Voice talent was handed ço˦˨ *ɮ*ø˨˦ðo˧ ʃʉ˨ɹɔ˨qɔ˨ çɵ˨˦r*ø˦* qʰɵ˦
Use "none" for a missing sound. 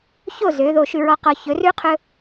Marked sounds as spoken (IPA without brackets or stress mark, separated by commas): z, ʉ˦